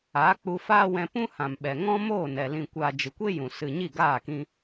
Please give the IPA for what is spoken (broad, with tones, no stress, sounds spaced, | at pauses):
aː˨˦ k͡p u˧ f aː˦ w ɛ̃˧ p ũ˦ h ã˨ m ɓ ɛ˨ ŋ ɔ̃˦ m oː˦˨ n ɛ˨ l ĩ˨ kʷ aː˨ d͡ʒ ɨ˨ kʷ e˦ j ũ˨ s ɨ˨ ɲ i˦˨ ɡ aː˦˨ k ĩ˧